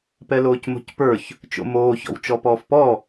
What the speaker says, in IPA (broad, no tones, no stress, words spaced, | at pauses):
pɛloːcmo̤cpə˞ç | t͡ʃo̰moːçɔ̰w t͡ʃɔpɔːfpɔ